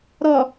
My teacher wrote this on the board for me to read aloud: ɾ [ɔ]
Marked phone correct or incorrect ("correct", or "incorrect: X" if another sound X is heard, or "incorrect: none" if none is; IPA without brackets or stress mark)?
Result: correct